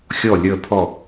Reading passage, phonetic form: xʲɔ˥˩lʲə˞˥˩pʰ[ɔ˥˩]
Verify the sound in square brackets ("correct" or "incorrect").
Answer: correct